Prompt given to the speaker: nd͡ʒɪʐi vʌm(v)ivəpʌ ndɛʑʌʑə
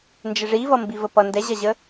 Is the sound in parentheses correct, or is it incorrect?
incorrect